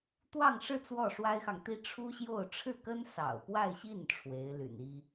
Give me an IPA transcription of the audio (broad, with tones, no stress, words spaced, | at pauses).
t̪wɑ˥˧ŋʂɻ̩˥˧ t͡swɔ˥˩ʂwa˥ɪ̯xɑ˨ŋt̪i˥ ʈ͡ʂʰu˥ɕjo˥˧ʊ̯ ʈ͡ʂʰɻ̩˥˩kə˥n sɑ̰˨˩ʊ̯pwa˥˧ɪ̯ɕi˥˩n ʈ͡ʂʰwe˧˥ɪ̯ly̰˨˩ni˥